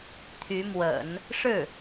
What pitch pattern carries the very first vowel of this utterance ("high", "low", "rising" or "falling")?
rising